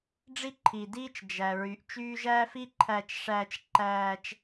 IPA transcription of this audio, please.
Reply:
ɖ͡ʐ i˦ ǃʰ i˩ d iː˦ t͡ʃ d͡ʒ æ˩ ɹ y˩ ʔ t͡ʃ yː˦ ʒ æː˥ f i˥ ǃʰ æ˨ t͡ʃ ʂ æː˨ t͡ʃ ǃ æː˨ t͡ʃ

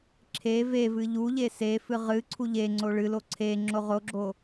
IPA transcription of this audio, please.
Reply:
ǁʰ e v e v ɨ ʎ u ʎ e s e f ɨ ʁ ɨ ǀʰ u ʎ e ŋ͡ǀ o ɭ ɨ l o ǀʰ e ŋ͡ǁ o ʁ o ɡ͡ǁ o

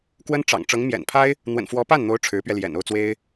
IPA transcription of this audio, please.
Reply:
k w ə˥ n ʈ͡ʂ ɑ̰˨˩ ŋ ʈ͡ʂ ɤ˧˥ ŋ m j ɛ̰˨˩ n pʰ a˥ ɪ̯ | n̪ w ə̰˨˩ n f w ɔ˧˥ p a˥˩ n n̪ o˧˥ ʊ̯ ʈ͡ʂʰ ɻ̩˧˥ p ɥ ɛ˧ l j ɛ̰˨˩ n o˥˩ ʊ̯ t͡s w e˥ ɪ̯

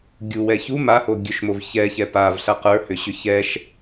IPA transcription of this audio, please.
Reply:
ɡʲ u w ɛ ç u m a h o ɡʲ ɵ ʃ m o v ç ɛ ç ɛ p a v ɬ a q ə˞ h ʏ ɕ ʏ ç ɛ ʃ

